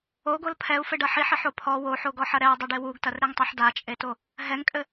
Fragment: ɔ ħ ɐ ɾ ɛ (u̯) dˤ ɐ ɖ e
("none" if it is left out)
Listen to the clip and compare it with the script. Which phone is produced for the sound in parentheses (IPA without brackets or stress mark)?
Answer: u̯